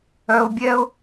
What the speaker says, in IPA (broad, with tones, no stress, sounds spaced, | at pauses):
œ˧ ʊ̯ bʲ ɛ˦ ʊ̯